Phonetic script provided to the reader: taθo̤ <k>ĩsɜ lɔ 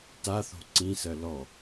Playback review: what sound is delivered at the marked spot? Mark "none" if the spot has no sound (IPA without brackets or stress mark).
ǀ